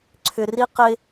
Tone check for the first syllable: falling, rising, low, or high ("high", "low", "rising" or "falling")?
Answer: low